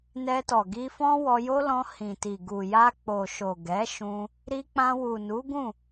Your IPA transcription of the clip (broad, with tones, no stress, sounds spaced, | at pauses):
n ɛ˧ t ɔ˨ ɡ i˧ f ɔ̃˦ w ɔ˧ j o˦ l ɔ̃˧ h ĩ˨ t i˨ ɡ u˨ j a˧ k͡p o˨ ʃ o˨ ɡ ɛ˨˦ ʃ ũ˧ | ɾ i˧ k͡p ã˧ w u˨ n u˨˦ ɡ ũ˦˨